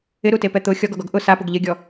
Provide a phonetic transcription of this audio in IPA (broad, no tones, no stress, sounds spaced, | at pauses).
ɪ ɾ u t e p ɛ t̪ ʊ xʲ ɔ ɡ ɔ ɡ ɔ ɡ ʔ ʊ s a p ʊ ɡ ʎ ɪ ɡʲ ɔ